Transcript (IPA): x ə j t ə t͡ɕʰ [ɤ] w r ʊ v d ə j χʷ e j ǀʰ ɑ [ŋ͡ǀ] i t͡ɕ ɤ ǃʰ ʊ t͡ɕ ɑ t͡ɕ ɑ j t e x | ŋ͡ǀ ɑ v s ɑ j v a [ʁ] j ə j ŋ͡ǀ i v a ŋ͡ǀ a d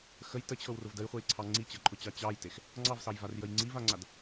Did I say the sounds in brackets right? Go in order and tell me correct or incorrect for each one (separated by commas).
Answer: correct, correct, incorrect